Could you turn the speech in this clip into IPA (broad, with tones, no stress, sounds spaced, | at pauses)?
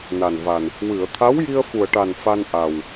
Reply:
n a˨˩ n v a˨˩ n | w ɨ˨˩˨ ə̯ t̪ʰ a˧˥ w j i˧ ə̯ f u˨˩ ə̯ ʈ a˨˩ n f a˧ n ʔ a˨˩ w